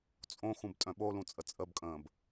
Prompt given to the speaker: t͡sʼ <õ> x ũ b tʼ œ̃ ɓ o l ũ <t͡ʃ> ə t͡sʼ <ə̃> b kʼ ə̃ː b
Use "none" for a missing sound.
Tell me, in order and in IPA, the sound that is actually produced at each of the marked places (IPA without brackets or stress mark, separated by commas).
õ, t͡sʼ, ə